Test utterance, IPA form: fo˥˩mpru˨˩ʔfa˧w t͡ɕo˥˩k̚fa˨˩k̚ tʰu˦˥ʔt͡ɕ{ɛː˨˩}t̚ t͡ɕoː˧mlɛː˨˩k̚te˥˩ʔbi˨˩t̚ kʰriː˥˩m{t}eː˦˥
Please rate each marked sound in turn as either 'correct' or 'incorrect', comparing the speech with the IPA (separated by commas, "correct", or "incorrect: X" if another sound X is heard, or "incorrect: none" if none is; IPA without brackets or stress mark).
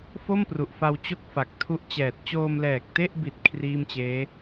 correct, incorrect: t͡ɕ